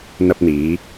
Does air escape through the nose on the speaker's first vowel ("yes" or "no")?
no